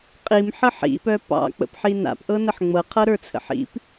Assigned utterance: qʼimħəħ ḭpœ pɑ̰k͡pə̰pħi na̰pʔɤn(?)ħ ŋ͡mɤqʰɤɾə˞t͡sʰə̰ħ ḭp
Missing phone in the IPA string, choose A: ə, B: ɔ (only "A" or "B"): A